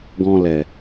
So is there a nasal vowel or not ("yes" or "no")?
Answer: yes